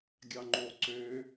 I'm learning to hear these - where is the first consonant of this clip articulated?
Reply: velum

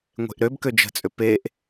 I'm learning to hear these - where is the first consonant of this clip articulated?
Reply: velum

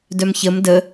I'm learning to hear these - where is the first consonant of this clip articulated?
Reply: tongue tip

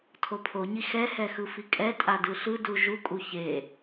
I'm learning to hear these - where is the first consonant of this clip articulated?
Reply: tongue tip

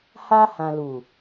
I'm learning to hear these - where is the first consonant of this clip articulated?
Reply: throat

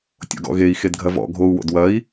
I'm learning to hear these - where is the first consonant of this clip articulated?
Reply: tongue tip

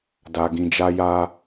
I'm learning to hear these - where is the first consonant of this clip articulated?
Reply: tongue tip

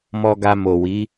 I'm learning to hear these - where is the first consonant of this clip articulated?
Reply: lips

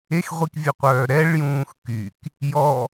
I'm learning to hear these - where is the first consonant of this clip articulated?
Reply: velum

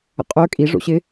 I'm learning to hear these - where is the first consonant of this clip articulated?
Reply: uvula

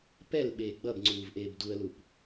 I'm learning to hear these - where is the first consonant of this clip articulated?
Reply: lips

